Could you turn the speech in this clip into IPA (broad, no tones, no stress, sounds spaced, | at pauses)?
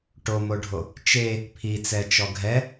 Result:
ʈ o m o ɖʱ o | t͡ʃ e | pʰ i t͡s ɛ t͡ʃ ɔ ɡʱ ɛ